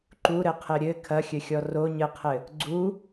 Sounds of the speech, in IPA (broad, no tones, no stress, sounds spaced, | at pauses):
ǃ u ɾ ɘ qʰ ɘ ɾʲ ɘ kʰ ɐ xʲ ɘ xʲ ɔ r o ɲ ɘ qʰ ɘ | ɡ͡ǀ u